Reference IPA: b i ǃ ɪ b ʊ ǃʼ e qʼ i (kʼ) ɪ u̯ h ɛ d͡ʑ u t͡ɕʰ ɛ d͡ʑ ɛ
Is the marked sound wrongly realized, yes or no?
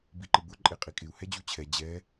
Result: no